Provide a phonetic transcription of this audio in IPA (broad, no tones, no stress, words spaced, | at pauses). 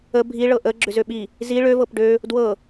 ə bʱiɭɤ ʔə ɡ͡ǁʏzøɓi | zi ɭøvɤp ɖø | dwɤ